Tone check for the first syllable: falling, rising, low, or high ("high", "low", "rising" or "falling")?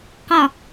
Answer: falling